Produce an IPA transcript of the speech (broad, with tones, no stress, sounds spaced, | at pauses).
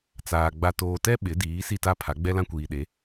t͡s aː˨ ɡ͡b a˨ t oː˨ t ɛ˦ ɓ ɪ˨˦ d iː˨˦ s i˦˨ t a˦ pʰ a˨˦ ɡ͡b ɛ˦ l ã˦ kʷ iː˨ ɗ e˨˦